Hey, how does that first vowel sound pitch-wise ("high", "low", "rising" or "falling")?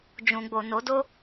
low